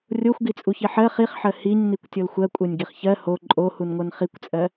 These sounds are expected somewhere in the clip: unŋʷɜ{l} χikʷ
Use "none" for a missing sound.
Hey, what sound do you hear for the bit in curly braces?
n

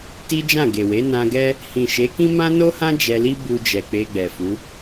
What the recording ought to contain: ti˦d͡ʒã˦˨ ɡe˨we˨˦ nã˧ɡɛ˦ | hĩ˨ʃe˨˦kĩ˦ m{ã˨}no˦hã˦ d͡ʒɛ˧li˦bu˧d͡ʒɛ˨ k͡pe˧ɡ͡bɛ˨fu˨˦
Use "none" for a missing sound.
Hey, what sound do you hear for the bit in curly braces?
ã˦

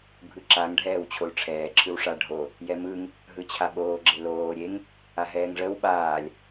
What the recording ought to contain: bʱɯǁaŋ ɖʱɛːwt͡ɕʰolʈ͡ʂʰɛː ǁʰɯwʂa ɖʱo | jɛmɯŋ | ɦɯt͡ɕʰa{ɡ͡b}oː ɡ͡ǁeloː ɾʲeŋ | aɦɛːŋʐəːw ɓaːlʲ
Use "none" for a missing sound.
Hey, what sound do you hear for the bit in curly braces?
ɓ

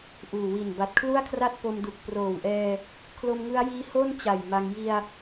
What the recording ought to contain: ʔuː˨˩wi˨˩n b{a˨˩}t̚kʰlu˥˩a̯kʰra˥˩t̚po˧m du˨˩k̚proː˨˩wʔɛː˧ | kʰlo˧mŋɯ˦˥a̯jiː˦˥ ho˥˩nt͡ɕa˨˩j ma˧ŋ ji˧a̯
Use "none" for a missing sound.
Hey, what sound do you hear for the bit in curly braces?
a˨˩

